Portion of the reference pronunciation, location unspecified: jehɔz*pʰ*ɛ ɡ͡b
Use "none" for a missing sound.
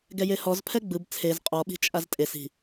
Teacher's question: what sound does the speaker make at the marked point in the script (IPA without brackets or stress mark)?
pʰ